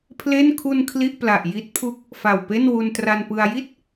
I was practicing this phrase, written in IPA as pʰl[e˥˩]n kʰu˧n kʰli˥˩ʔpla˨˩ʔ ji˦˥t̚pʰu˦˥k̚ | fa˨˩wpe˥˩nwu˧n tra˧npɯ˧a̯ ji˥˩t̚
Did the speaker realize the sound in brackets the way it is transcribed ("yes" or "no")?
yes